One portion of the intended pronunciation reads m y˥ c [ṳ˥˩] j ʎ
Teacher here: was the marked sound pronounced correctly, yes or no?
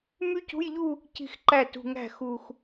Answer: no